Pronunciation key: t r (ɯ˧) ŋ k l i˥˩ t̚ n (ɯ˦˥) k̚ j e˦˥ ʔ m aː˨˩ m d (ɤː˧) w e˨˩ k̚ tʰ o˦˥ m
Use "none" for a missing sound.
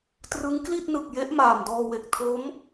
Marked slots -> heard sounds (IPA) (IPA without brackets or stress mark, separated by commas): ɯ˦˥, ɯ˨˩, ɔː˧